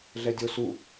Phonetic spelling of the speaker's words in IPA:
ɮ ɛ dʲ o s u

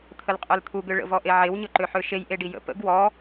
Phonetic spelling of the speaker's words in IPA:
t̪ʰ ə l qʼ ø l t̪ʰ u ɡ ø ɭ ə̰ v ɔ ʔ e ʕ e w ɲ ɵ ǃ ø ħ ø ʃ e j ʔ e ɖ i j ə̰ p ə̰ ɡ w ɔ

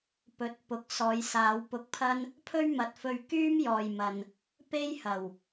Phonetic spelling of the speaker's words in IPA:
p ɵ˨ t̚ p ʊ˨˥ k̚ s ɔː˨˧ j s aː˨˧ w p ʊ˧ k̚ pʰ ɐ˥ n | pʰ ɵ˥ ɥ m ɐ˨ t̚ f ɵ˧ ɥ k yː˥ m j ɔː˨ j m ɐ˨ n | p e˥ j h ɐ˨˩ w

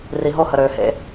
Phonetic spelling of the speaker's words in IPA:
r i˨ ɦ o˧ h ə˨ ɾ øː˨ h ḛ˧

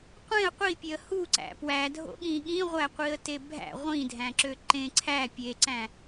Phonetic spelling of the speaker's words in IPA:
qʷ ẽ ə̯ qʷ i pʲ e ə̯ h u ǀ æ̰ p w æ dʱ o̰ ɠ ĩ ɠ ĩ ʁʷ æ qʷ i ə̯ t e bʱ æ̰ ʁʷ ĩ dʱ æ̃ ǁ ø ǃ ẽ ǀʰ æ pʲ e ǀ æ̃

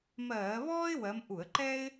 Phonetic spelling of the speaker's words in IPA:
m ɜː˧˩˧ β ɔː˥ ɪ̯ w ɜ˨˦ m ʔ u˧˩˧ ə̯ ǃ ɛ˥ ɪ̯

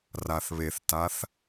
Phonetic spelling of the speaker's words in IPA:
r a θ β e θ t a θ

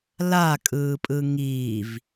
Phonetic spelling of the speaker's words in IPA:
l a kʼ ɯː pʼ ɯ ŋ iː v

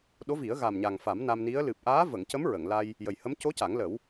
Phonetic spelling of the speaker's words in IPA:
ɗ o˧˥ v i˨˩˦ ə̯ ɣ a˨˩ m ɲ a˨˩ ŋ f a˨˩˦ m n a˧ m n i˧˥ ə̯ l ɨ˨˩ p̚ ʔ aː˧˥ v ə˨˩˨ ŋ c ə˧˥ m ɹ ə˨˩˨ ŋ l a˧ j | j ə˨˩ j h ə˧˥ m c o˧˥ c a˨˩˦ ŋ l ə˨˩˦ w

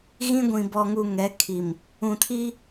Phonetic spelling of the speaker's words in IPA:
ɣ ĩ˦ ɡʷ ĩ˨ b ɔ˨ ŋ u˨ ŋ ɛ˨˦ kʰ i˨ m | ũ˨ tʰ i˦

